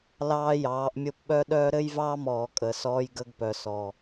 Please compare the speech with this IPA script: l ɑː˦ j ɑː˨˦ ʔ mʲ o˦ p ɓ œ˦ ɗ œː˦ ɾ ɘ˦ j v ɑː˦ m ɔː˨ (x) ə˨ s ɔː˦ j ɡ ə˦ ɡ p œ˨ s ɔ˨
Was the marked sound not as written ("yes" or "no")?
yes